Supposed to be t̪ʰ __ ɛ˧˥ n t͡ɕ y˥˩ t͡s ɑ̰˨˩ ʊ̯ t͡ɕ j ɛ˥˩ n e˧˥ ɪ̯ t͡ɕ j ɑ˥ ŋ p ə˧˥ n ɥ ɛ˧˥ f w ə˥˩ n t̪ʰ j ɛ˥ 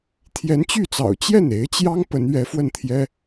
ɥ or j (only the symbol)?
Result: j